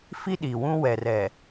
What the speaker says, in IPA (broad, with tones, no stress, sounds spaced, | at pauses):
f i˦ ɗ i˨ w ũ˦ w ɛ˨ r ɛ˨